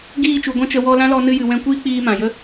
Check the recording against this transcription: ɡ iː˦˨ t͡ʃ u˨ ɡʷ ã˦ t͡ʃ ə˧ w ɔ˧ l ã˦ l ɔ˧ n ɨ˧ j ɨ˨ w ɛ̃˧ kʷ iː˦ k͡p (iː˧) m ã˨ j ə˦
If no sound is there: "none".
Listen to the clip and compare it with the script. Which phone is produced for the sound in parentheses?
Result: iː˧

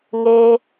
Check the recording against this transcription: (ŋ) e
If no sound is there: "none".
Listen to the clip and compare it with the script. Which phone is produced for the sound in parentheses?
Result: ŋ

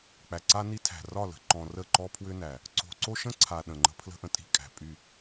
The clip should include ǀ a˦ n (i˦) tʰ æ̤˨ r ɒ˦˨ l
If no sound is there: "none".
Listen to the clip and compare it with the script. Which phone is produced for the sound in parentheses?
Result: i˦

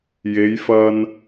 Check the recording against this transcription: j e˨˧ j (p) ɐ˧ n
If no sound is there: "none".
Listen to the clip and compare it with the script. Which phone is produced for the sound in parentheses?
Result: f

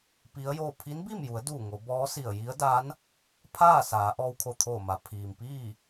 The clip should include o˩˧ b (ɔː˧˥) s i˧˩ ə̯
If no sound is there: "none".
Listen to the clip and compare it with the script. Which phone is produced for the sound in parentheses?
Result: ɔː˧˥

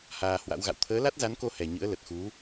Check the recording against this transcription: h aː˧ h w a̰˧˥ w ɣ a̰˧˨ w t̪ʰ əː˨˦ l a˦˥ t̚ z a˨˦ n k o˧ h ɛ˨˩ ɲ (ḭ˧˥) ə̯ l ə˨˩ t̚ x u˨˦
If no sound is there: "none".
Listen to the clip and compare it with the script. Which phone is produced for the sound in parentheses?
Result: ɨ̰˧˥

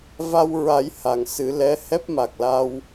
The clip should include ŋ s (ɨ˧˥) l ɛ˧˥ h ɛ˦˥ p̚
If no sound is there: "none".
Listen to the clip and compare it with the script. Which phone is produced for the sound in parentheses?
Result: ɨ˨˩˦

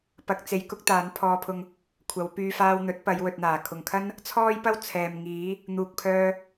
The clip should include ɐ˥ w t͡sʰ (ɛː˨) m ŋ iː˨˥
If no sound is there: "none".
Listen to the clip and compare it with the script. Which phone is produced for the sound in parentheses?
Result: ɛː˨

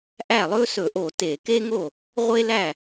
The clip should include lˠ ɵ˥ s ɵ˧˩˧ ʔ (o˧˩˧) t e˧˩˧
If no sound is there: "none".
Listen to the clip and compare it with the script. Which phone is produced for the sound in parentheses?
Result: o˧˩˧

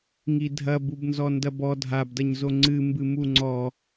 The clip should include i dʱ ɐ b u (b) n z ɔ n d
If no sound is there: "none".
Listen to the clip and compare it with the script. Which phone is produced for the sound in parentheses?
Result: b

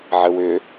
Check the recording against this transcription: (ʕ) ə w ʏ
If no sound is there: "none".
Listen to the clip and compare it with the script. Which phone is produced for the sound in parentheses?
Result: ʕ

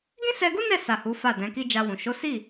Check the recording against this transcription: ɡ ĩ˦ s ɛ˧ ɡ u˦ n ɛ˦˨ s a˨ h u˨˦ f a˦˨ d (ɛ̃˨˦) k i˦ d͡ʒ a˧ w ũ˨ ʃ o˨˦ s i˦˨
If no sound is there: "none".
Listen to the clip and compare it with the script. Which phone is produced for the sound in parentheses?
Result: ɛ̃˨˦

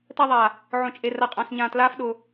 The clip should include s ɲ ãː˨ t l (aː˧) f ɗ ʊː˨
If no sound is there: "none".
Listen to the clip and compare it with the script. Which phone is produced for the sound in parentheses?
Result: aː˧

